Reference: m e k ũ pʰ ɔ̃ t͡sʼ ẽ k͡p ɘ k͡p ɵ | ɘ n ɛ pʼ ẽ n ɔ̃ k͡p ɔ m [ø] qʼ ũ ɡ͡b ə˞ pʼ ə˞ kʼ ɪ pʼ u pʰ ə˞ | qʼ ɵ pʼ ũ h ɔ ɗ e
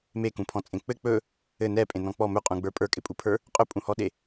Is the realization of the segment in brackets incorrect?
yes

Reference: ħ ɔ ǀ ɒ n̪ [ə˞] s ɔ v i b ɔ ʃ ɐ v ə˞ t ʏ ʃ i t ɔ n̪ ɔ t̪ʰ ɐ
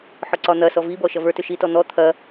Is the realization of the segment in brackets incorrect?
yes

